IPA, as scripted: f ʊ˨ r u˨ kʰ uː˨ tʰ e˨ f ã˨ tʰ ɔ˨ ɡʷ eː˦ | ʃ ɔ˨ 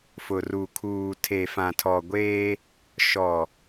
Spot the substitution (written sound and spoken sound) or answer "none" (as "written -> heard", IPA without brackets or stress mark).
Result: none